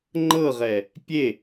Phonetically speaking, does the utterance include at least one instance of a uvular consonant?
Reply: yes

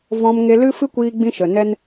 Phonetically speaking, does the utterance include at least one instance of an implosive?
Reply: no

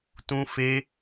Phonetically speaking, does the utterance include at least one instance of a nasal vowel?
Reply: yes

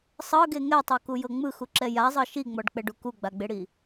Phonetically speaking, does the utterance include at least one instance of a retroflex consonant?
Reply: yes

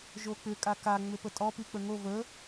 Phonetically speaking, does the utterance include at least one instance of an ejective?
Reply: yes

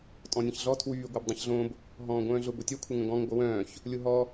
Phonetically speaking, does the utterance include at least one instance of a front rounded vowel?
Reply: yes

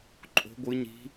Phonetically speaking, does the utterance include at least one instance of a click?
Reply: yes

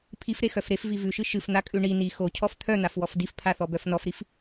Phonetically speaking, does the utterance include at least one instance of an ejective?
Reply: yes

